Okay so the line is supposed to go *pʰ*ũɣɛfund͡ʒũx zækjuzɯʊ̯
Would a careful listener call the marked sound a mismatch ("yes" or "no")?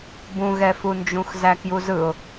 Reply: yes